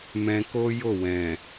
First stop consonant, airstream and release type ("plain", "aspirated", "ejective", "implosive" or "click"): plain